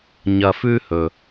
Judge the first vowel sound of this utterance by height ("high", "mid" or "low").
low